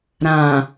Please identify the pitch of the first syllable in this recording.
low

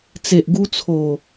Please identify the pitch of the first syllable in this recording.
low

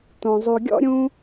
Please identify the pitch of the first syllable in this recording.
low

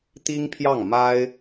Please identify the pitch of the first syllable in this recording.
high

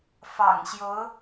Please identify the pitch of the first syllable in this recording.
low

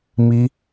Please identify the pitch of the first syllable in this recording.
high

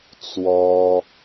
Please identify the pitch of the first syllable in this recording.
high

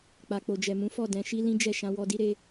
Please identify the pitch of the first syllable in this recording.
low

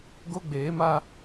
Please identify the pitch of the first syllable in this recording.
high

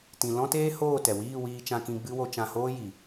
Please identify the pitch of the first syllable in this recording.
low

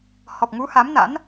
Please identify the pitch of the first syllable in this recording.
low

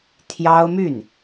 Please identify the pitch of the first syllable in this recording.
high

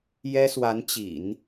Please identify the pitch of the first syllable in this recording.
high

